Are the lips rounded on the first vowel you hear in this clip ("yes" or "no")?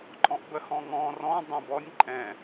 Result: yes